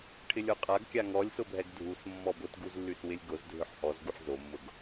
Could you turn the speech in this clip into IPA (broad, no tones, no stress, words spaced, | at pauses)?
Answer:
ʈʰɪlʲoqʼaɡkʲa ŋɔlʲsʊbʱɛɡ dʱus mːɔbʊtɡuzlːys wɪlʲɡʊz dʱʏħhɔzɡuħ zomːʊɡ